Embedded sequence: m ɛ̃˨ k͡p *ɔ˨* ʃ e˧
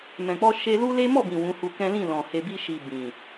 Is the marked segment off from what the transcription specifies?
yes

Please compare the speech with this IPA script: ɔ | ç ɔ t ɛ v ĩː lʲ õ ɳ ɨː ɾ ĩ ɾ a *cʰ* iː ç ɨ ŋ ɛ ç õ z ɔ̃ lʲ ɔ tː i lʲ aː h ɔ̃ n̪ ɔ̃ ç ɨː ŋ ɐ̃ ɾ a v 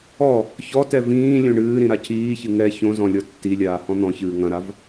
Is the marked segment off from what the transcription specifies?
no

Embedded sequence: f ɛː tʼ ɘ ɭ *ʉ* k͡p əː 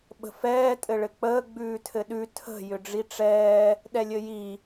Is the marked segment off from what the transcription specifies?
yes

